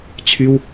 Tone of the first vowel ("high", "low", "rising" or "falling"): high